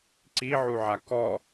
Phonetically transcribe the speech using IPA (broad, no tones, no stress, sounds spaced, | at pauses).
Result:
ǀ i ʕ u ʕ a k ɔ